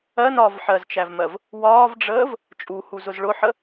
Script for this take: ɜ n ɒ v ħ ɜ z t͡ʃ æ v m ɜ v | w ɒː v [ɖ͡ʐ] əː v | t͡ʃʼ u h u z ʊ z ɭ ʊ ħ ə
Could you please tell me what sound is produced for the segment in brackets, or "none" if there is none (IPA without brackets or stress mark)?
ɖ͡ʐ